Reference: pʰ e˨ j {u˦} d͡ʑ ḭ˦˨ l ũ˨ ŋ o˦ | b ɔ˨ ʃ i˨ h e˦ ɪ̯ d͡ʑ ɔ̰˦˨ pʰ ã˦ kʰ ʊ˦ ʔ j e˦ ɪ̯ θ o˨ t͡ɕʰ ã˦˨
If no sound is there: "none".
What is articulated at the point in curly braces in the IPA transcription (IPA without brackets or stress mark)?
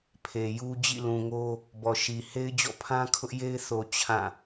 u˦